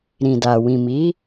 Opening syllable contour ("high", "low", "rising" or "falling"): low